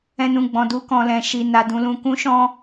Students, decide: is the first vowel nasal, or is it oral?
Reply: nasal